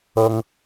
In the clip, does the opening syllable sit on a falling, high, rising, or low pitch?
high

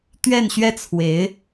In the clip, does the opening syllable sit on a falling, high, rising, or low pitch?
falling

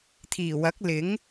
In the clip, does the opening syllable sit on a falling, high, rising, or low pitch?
low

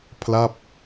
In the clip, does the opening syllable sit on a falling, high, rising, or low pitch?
falling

